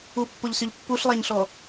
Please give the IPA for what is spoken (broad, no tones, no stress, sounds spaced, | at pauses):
u pː o ʎ s y ʎ pː u ɬ lˠ æ ɲ ɬ ɔ